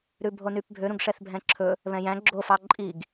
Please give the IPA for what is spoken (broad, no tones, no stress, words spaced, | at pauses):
ɾʉbʱonypbʱø ɾũɡʂɛθbʱɛ̃ǁʰɵ | βɛ̃jæ̃ ɡ͡ǁo fɑǃʼiɡ